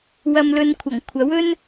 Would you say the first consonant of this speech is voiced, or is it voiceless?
voiced